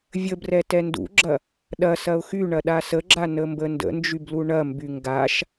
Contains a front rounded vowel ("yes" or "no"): yes